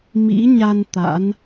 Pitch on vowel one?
rising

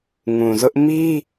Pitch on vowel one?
low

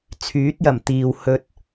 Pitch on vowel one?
rising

